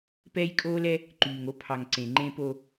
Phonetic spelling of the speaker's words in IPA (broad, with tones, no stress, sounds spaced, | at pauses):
p ɛː˦ j kʼ oː˦ l ɛ˦ | ǃ yː˨ ŋ o˦ pʰ ɑ˨ ŋ ǀ ẽ˨ ŋ͡ǃ ẽː˦ p o˦